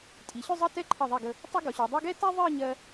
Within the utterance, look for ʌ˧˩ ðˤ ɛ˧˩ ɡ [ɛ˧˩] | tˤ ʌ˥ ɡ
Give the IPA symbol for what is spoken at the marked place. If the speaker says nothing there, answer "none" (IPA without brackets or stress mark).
ə˧˩